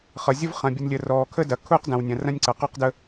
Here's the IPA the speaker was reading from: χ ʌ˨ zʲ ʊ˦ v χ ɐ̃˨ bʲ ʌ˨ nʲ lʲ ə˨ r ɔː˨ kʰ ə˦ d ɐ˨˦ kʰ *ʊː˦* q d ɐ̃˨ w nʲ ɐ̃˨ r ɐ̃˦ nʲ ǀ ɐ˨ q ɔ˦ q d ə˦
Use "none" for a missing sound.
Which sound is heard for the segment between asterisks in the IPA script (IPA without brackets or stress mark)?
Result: ʊː˦